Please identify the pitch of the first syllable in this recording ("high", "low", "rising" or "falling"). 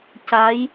rising